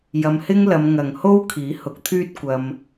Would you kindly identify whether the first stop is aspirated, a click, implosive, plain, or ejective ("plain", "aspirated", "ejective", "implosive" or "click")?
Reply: aspirated